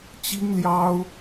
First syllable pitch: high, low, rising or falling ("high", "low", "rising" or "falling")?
high